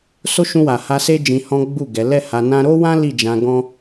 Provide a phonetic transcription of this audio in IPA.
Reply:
s o˦ ʃ ũ˧ w a˨ h a˧ s e˦ d͡ʒ ĩ˧ h ɔ̃˦ ɡ͡b u˦˨ ɡ ɛ˨˦ l ɛ˦˨ h a˧ n ã˦ ɾ o˦ w ã˦ l i˦˨ d͡ʒ ã˧ ɡ ɔ̃˦

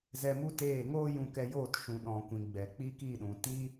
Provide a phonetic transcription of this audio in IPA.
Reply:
z ɛ˧ m u˦ t eː˦˨ ŋ oː˦ j ũ˧ k ɛ˧ j oː˦˨ t ʃ ũ˨ ɗ ɔ̃˨ kʷ ĩ˨ ɡ͡b ɛ˨ k͡p i˦ k i˦˨ ɗ ũ˨ t i˦

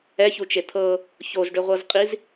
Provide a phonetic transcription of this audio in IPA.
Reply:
ɛ ç u t͡ʃ e t̪ʰ ɤ | ç o z ɖ ʏ ʁʷ ɤ z qʼ i z

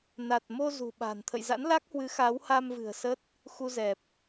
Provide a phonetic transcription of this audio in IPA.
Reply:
n a˨˩ t̚ m o˧ z ṳ˨˩ ɓ a̤˨˩ n t̪ʰ ə̰˧˨ j z a̰˧˥ n l a˦˥ k̚ h w ɨ˨˦ x a˨˦ w h a˧ m v ɨ̤˨˩ ə̯ s ə˦˥ t̚ | x u˧ z ɛ˨˩ p̚

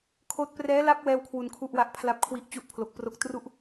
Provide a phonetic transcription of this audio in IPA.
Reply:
kʰ oː˦˥ t̚ p r ɛː˦˥ l a˦˥ p̚ w ɛː˥˩ w kʰ w u˧ n kʰ u˥˩ ʔ w a˥˩ ʔ pʰ l a˥˩ p̚ kʰ w i˥˩ ʔ t͡ɕ u˥˩ ʔ pʰ l o˨˩ k̚ p r o˥˩ k̚ t r u˥˩ ʔ

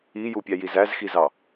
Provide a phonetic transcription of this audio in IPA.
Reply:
i j u pʲ æ j i z æ z x i z ɑ

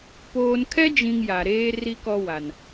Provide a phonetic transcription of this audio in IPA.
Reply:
p oː˨ n kʰ ɛ˦ d͡ʒ ĩ˨ ŋ j a˨ ɾ eː˦ r i˦ k ɔ˦ w a˨ n

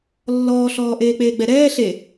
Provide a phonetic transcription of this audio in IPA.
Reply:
lː ɔː ɬ ɔː ʔ eː k͡p eː ɡ͡b ɛ ɾ ɛː ɬ e

